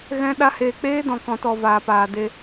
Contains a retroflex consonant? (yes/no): no